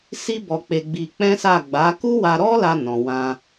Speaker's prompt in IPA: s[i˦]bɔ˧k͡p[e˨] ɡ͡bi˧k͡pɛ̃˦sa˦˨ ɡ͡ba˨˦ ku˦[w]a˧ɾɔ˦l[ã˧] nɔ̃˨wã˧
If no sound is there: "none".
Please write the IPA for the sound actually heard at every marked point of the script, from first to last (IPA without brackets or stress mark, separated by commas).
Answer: i˦, e˧, w, a˧